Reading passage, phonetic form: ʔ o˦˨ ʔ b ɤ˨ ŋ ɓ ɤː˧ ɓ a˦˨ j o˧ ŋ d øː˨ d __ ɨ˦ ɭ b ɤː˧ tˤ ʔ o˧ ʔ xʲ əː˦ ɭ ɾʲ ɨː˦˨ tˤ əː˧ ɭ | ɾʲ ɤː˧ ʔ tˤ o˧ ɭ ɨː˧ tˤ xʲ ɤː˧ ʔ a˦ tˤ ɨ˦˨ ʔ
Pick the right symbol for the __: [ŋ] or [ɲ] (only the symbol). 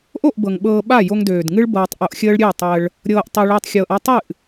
ŋ